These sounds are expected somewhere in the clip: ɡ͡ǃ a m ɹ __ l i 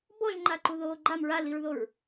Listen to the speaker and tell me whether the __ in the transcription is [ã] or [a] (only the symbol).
a